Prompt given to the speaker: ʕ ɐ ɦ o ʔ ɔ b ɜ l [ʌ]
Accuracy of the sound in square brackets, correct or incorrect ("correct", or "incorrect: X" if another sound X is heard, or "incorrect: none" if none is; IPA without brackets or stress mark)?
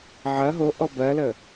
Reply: incorrect: ə